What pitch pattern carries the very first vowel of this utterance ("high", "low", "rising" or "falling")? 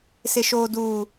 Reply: low